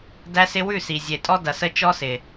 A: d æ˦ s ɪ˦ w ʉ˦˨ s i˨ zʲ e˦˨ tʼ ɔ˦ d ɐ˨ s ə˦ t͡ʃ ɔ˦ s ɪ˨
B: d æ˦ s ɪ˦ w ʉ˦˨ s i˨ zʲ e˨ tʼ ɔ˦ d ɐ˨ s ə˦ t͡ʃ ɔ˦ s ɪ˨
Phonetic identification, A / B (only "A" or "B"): B